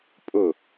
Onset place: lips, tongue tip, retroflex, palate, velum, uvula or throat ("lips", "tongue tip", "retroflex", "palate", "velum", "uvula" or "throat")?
lips